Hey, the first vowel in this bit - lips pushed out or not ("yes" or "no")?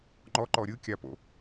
yes